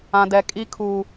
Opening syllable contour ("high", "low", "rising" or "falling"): high